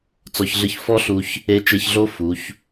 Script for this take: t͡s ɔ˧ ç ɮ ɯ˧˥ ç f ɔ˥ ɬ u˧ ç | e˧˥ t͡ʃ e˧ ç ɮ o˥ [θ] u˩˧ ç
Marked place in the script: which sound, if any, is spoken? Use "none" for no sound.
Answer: f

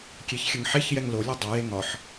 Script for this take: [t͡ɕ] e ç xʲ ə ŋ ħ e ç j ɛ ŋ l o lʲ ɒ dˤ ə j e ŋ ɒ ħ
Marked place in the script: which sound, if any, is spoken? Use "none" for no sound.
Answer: kʲ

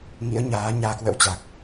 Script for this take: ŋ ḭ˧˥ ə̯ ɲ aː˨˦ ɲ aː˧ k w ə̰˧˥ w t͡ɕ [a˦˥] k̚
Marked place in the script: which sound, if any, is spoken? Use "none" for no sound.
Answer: a˨˩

